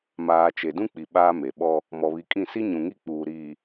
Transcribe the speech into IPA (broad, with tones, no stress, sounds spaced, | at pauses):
m aː˨ t͡ʃ e˨ d ũ˦ k͡p i˨ ɓ aː˦ m e˨ ɓ ɔ˦ | m ɔ˨ β i˨ kʼ ĩ˦˨ s i˦ ɲ ũ˨ ŋ i˦˨ k͡p uː˨ ɾ iː˨